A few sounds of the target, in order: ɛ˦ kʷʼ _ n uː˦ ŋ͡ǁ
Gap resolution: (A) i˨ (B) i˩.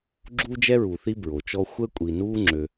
A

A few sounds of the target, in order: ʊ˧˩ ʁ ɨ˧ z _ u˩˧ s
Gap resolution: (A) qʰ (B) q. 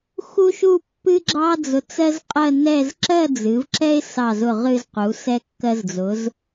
B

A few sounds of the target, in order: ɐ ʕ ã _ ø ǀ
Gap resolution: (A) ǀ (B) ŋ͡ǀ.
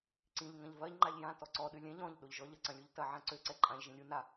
A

